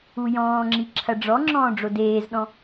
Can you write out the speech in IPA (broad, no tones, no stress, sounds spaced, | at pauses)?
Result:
u j ɔ̃ː ŋ͡ǁ i ǁʰ ɐ ɖ͡ʐ ɔ ŋ͡ǁ ɔ̃ː ɖ͡ʐ o d eː z ɗ ɔ̃